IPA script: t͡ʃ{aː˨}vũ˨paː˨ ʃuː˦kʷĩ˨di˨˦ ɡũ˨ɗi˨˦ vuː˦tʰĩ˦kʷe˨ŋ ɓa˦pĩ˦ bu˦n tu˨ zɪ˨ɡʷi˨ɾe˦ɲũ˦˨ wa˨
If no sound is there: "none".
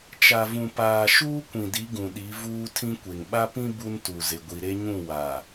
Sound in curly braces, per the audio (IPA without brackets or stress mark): a˨